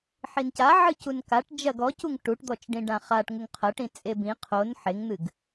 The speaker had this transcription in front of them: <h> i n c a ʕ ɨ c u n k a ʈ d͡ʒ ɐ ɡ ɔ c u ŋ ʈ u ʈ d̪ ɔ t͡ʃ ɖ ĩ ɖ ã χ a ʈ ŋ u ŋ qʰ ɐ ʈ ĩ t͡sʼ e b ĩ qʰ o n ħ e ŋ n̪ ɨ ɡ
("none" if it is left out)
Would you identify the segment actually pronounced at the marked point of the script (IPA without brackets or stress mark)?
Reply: ħ